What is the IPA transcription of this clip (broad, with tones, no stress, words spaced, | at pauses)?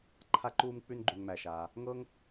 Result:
ǃʰa˧ǃuː˧mk͡pʉ˧n ɡ͡ǃʉ˩ŋmæ˩ʃaː˩ | ŋɤ˥ŋ